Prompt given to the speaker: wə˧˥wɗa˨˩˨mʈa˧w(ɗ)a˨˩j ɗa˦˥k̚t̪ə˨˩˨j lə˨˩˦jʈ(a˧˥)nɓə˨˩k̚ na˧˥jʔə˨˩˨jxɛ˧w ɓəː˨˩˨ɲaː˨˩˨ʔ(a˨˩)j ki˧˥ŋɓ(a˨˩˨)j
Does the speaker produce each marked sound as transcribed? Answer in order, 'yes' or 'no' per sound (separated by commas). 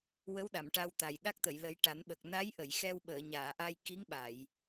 no, no, no, yes